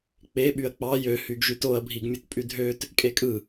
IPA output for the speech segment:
k͡p e ɓ y ɐ̯ k͡p ɑ j ø h y ɡ ʒ y t o ɐ̯ bʱ i ɡ mʲ u t pʼ y dʱ ø t | kʼ e kʼ ɯ

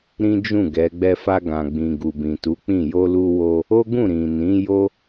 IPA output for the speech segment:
ɾ ĩ˦ d͡ʒ ũ˦˨ ɡ ɛ˨˦ ɡ͡b ɛ˧ f a˧ ɡ ã˨ ɡ͡b ĩ˨ ɡ u˨ b ĩ˨ t u˨˦ k͡p ĩ˦˨ j o˧ l u˧ w o˧ | o˦ ɡ ũ˦˨ ɾ ĩ˨ n ĩ˨˦ j o˦

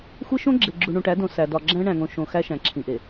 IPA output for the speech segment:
xʷ e˦ ʃ õ˦ ɡ͡ǁ e˨ ɡ͡ǁ u˨ ɳ ũ˨ ʈ æ˨˦ d õ˨ s æ˨ d ɒ˨ ɡ͡ǁ æ̃˦ ɳ æ̃˨ ŋ õ˨ ʃ õ˨ x æ˦ ʃ æ̃˨ ǁʰ ĩ˨ ʔ e˨

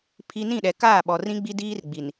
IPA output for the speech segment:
pʰ i˦ n ĩ˦˨ ɗ ɛ˨ k aː˦˨ ɓ ɔ˨ r ĩ˦ ɡ͡b i˦ d iː˦ r ɡ͡b i˨ n

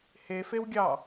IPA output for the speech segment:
h e f e w ɡʲ ɑ

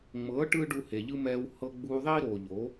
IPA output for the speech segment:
ŋ͡m ɤ˨˦ ʈ ɯ˧ ɖ u˧ h e˨ ʎ ɯ˦ m ɛː˧ w h ɤ˧ ɡ͡b uː˧ ðˤ iː˦ ɾ oː˨ ʎ o˨˦

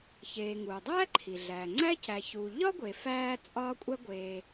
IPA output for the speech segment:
ç eː˩ ŋ uː˩ dˤ æː˥ ǃʰ i˩ ɮ æː˩ ŋ͡ǀ æ˥ c æ˨ ç uː˨ ʎ ɒ˥ ɡʷ e˩ f æː˥ t͡sʼ ɒː˥ kʷʼ æ˥ ɡʷ eː˨

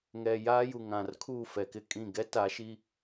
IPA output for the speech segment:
ŋ ɛ˨ j aː˦ j u˨ ŋ ã˨ r kʰ uː˦˨ f ɛ˨ k ɪ˦ kʼ ĩ˦˨ ɡ ɛ˦ t a˨˦ ʃ i˦

